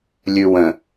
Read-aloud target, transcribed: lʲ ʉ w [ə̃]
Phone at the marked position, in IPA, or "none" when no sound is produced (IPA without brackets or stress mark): ə̃